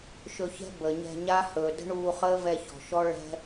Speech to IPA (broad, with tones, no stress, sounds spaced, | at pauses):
ʃ ɵ˧ ç ɛ̤˦ b ə˨ ɲ ɛ̤˧ ɲ a˦ h ɵː˨ d ə̤˦ ɳ uː˧ χ əː˦ v ɛ˧ ç ɔ̤˨ ʃ ɔ˦ ɭ ɛ̤˦